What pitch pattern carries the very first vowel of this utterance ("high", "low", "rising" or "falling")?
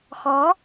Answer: rising